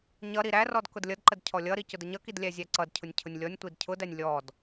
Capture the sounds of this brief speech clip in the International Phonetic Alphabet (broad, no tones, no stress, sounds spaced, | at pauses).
ɲ ʌ ɾ i ɾ æ r ɔ d k ʊ d lʲ ʌ d ǃ ə d cʰ ɔ lʲ ʌ ɾ i c ʊ d ə ɲ ʌ k i d lʲ æ zʲ æ ǀ ʌ d cʰ ʊ nʲ cʰ ʊ nʲ lʲ ɔ nʲ tʷ i d cʰ ʊ d æ nʲ lʲ ɔ d